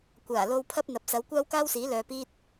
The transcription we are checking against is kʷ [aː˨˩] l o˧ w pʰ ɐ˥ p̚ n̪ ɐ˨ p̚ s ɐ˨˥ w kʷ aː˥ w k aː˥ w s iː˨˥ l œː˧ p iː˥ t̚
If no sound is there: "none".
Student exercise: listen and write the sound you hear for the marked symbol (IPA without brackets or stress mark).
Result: aː˨˩